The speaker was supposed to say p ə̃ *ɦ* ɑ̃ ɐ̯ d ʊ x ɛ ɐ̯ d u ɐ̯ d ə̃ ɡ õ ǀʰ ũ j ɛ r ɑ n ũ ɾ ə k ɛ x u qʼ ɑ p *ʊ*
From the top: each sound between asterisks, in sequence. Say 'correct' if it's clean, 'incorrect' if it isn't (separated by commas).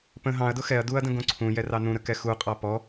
correct, incorrect